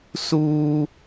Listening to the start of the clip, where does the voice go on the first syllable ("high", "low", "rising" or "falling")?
high